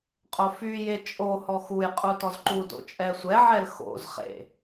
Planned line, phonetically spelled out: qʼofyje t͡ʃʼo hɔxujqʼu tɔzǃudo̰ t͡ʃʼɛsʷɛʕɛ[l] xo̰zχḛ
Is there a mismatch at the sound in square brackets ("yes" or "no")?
no